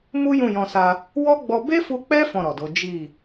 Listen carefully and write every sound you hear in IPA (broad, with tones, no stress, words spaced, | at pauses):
mu˦jũ˦˨jɔ̃˧sa˧ | wɔ˦ɡ͡bɔ˧ be˦fu˧k͡pɛ˦ fɔ̃˦˨ɾɔ˨do˨˦ d͡ʒi˦˨